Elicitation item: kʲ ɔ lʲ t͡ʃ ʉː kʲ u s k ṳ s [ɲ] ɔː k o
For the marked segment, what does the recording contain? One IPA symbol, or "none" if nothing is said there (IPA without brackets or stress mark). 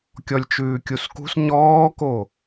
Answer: ɲ